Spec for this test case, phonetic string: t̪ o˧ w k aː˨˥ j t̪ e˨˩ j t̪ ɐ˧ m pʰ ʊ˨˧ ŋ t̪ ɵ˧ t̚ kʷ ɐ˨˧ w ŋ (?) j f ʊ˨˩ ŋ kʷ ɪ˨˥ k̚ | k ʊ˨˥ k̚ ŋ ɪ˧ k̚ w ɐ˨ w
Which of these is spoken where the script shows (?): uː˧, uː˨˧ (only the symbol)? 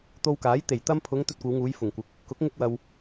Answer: uː˨˧